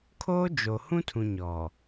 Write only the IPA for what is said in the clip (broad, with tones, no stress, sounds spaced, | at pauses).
kʰ oː˦ d͡ʒ o˨ h ũ˦ tʰ ũ˨ ɲ ɔ˨